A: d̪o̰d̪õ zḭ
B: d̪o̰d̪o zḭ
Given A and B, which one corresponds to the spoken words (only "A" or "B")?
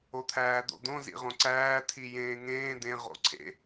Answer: A